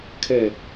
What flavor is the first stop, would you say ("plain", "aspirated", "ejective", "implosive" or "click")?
aspirated